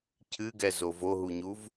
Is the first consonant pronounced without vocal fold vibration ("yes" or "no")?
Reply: yes